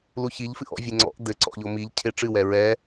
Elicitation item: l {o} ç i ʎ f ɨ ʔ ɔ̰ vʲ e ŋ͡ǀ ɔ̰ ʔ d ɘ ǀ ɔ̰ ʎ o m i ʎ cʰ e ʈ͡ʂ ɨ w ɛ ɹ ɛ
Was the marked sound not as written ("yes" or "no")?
yes